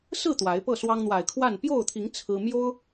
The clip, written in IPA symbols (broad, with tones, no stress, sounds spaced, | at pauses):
s ɹ̩˥˨ t̪ w a˨˦ ɪ̯ p ɤ˥˨ s w ɑ˦ ŋ n̪ w a˨˩ ɪ̯ kʰ w a˥˨ n p j o˥˨ ʊ̯ t̪ʰ i˨˦ ŋ t͡sʰ ɹ̩˦ m j o˦ ʊ̯